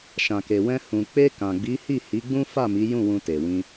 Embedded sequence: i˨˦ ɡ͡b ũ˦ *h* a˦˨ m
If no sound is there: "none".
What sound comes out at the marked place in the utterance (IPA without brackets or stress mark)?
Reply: f